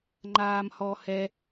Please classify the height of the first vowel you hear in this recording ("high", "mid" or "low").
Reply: low